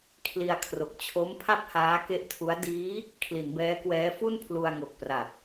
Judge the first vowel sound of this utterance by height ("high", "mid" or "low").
high